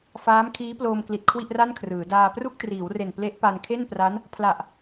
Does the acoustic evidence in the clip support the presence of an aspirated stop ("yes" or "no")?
yes